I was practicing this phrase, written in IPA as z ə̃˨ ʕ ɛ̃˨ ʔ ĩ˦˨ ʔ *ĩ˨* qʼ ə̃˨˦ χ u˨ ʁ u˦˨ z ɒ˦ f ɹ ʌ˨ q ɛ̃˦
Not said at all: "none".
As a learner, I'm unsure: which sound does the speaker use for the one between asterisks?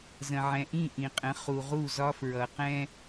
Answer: ĩ˨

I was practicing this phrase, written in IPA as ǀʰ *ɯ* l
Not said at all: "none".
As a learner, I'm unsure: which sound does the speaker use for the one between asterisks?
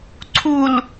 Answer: u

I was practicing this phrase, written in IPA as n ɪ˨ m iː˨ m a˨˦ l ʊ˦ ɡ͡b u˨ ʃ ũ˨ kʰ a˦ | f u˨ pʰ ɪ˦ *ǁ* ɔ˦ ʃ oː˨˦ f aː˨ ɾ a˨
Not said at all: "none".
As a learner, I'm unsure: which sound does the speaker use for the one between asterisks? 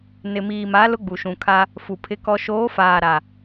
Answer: k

